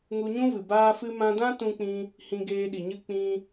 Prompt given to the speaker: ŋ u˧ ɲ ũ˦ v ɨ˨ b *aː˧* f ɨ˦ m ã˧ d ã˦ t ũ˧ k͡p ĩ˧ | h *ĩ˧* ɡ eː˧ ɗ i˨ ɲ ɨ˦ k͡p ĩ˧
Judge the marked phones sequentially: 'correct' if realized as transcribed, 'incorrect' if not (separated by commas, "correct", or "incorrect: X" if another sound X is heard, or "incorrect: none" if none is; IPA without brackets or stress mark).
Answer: incorrect: aː˦, correct